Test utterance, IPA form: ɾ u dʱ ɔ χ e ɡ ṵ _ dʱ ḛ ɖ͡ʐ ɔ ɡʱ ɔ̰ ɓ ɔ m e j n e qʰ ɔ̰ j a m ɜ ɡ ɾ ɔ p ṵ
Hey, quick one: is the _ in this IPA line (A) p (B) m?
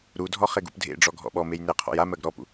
A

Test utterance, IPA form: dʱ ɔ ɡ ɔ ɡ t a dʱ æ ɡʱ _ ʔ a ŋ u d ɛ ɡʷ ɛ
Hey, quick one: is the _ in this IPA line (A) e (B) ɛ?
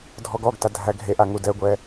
A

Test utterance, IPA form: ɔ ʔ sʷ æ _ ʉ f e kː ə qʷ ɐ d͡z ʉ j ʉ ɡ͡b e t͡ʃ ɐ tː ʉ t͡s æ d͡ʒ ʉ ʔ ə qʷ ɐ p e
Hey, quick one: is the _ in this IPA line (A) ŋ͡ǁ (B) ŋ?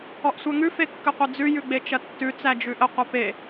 B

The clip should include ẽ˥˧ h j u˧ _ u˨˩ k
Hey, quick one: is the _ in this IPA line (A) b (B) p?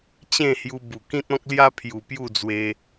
A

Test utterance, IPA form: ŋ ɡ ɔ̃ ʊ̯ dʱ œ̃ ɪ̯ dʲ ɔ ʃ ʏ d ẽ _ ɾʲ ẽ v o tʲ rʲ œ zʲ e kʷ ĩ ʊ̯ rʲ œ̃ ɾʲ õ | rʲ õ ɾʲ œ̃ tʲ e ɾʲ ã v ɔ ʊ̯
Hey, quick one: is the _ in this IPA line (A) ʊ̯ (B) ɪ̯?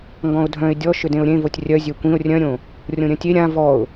A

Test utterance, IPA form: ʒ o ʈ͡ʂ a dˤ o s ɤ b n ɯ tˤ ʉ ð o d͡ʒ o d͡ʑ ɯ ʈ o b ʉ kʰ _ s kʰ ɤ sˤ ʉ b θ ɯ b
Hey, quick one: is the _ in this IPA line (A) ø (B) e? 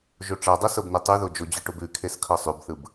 B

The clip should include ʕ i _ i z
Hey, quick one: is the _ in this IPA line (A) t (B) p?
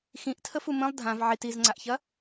A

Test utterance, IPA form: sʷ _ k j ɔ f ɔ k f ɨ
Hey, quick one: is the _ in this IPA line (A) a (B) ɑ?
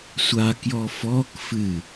A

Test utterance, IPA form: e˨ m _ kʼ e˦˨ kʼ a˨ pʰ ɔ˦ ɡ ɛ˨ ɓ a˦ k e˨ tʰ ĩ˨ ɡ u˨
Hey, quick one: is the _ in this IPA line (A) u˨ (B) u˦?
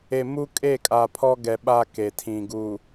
B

